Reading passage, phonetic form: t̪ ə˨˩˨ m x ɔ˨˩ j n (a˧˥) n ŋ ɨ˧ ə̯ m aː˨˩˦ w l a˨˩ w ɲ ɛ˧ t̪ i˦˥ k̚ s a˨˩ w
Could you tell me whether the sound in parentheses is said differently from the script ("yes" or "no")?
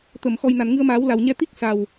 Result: yes